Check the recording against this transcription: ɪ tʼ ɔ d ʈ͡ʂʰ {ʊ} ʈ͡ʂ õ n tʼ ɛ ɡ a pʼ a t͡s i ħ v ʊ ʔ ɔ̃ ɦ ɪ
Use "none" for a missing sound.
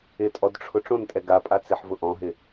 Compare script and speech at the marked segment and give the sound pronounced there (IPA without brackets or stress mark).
ʊ